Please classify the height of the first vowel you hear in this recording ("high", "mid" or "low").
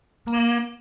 high